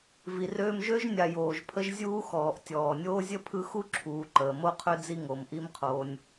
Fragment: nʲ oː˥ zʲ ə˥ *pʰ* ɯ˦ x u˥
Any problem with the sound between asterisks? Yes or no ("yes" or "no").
no